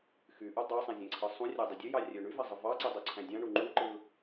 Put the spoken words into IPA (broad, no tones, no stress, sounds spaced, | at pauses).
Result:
x y ʔ u dˤ ɑ sˤ æ̃ zʲ æ̃ ǀʰ ɯ sˤ ũ rʲ æ dˤ i dʲ ø j ɑ rʲ ø ɳ y v æ zˤ ɯ v ɑ ǀ i dˤ u ǀʰ æ̃ dʲ ɑ̃ ɳ u ŋ͡ǃ u ǃ ɯ